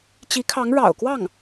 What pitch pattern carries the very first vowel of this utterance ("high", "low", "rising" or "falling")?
rising